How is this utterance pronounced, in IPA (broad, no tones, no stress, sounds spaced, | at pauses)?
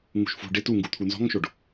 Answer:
ŋ ṳ ʃ f ṳ ɖ ɪ t u ŋ ɡ u t̪ʰ u n z ɔ̤ ŋ ʃ o ɖ